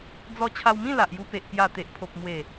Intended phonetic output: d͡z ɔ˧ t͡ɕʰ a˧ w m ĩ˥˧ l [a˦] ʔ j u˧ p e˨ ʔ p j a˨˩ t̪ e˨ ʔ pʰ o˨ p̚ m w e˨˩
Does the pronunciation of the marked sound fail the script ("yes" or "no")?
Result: yes